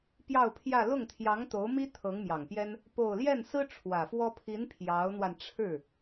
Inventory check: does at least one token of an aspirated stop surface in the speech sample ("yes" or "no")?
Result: yes